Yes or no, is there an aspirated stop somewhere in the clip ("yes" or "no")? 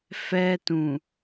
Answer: no